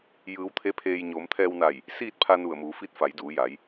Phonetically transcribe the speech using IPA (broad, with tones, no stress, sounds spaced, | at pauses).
j ɯː˩˧ w t̪ʰ e˧˥ pʰ eː˧ j ɲ oː˩˧ m t̪ʰ ɛː˧ w n a˧˩ j | s iː˥˨ t̚ pʰ a˧ n u˧˩ ə̯ m uː˩˧ f i˧˥ t̚ f a˩˧ j d uː˩˧ j a˩˧ j